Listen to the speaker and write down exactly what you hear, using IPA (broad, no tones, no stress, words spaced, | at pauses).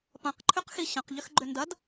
pɐ̃qǃʰʏqxi ɕɐ̃qʎʏxɡ͡ǃʏ ndɐd